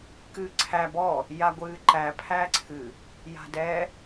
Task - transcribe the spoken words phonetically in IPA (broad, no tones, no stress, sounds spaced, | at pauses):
k ɨː ǀʰ æ b ɔ | j a ɡʷ ɨː ǃ æ pʰ æ ǀʰ ɨ | j a̤ d ɛ